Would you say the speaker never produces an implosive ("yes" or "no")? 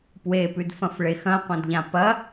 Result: yes